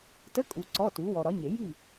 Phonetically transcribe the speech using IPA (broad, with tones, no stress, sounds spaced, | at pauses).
t ə˧˥˧ kʼ u˨ ǀ ɔ˧˥˧ t u˨˥ w ɔ˨ ɾ ɒ˨˥ ɲ e˨˩˦ j i˥˨